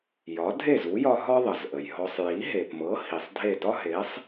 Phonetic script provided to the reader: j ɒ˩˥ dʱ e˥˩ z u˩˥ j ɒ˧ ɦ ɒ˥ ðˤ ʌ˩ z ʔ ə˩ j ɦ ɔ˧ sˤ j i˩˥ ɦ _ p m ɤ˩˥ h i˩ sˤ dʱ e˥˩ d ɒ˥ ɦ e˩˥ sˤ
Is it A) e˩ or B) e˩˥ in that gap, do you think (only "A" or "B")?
A